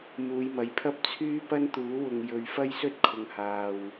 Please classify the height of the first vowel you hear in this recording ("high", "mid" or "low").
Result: high